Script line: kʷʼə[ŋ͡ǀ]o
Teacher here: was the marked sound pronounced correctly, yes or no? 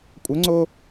yes